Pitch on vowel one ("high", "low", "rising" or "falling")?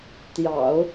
low